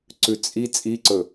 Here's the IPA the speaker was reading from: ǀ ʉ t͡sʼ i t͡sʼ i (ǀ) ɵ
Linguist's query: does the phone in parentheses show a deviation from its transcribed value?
no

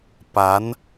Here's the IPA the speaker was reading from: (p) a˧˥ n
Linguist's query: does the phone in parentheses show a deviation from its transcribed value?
no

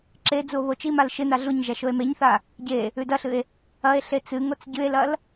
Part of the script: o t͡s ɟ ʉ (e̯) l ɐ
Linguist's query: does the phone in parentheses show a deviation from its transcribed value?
no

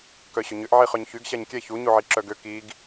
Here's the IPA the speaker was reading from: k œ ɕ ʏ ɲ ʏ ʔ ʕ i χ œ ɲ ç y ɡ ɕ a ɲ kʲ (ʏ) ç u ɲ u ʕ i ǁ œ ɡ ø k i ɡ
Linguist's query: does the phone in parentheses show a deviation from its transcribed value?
yes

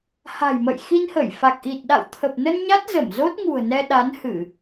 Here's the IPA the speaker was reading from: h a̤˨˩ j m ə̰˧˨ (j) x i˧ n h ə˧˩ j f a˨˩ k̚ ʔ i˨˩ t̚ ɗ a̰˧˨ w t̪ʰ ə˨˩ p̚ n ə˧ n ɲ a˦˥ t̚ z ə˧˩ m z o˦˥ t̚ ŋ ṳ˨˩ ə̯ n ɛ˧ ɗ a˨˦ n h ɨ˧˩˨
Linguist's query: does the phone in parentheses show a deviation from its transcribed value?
no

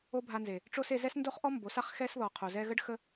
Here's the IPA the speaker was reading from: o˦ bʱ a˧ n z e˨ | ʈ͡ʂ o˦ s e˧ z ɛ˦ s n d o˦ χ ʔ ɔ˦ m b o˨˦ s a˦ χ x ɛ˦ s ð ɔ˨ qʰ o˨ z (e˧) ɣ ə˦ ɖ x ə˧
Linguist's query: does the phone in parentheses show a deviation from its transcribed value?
yes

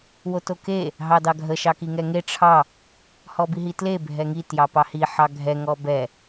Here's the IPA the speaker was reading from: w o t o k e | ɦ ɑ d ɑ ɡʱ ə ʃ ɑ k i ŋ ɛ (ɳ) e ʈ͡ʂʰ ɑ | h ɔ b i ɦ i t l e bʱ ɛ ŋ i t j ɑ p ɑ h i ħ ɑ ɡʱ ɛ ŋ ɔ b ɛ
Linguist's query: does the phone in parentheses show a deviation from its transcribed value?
yes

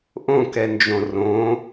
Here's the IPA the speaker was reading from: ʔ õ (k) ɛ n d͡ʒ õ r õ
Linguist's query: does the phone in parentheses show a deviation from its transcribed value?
no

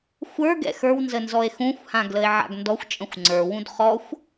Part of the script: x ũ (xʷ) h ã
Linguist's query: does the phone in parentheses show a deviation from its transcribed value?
no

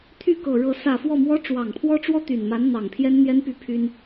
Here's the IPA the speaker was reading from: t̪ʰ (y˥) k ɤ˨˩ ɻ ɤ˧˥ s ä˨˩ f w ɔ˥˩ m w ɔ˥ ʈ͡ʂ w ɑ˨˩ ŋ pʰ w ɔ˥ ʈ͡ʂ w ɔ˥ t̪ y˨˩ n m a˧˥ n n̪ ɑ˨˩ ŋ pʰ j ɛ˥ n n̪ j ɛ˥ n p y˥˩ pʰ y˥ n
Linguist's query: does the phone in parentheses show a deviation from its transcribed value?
yes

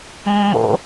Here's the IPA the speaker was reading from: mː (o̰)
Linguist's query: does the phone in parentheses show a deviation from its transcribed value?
no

